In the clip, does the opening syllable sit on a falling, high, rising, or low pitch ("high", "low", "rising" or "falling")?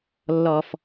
low